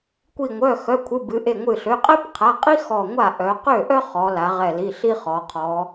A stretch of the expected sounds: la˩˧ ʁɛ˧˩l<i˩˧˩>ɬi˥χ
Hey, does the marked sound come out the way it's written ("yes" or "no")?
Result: yes